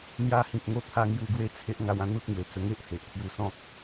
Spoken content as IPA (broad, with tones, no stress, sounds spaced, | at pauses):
n̪ j a˧ h ĩ˨ k̚ ŋ o˧ t̪ʰ a˧ ŋ j u˧ ɡ w e˥˧ t͡sʰ e˦ ʔ ŋ a˧ w ã˥˧ n̪ u˦ t̚ ŋ w e˨˩ t͡s ə˧ ŋ e˦ ʔ h e˨ ʔ t̪ʰ j u˧ s ɔ̃˦ k̚